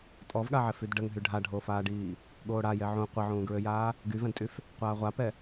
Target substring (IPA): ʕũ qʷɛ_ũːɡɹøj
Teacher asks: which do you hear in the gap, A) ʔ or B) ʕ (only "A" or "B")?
B